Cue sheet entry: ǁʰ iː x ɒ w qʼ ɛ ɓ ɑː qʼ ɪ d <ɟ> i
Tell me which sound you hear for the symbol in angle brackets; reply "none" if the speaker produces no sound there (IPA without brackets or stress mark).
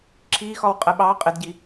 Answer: ɟ